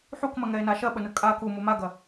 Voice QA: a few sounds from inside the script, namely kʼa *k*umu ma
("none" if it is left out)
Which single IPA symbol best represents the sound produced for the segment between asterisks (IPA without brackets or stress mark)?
k